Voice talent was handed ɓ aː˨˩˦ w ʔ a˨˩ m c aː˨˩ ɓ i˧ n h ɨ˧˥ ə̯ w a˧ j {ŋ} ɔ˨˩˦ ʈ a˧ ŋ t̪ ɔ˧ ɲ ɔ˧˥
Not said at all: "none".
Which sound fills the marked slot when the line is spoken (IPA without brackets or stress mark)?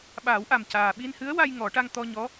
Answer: ŋ